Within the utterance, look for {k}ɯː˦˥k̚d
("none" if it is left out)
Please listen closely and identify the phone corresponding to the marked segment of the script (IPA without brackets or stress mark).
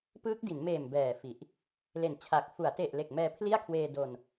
p